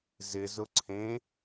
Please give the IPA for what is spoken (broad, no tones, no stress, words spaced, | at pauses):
zɪzʊ ǀʰẽ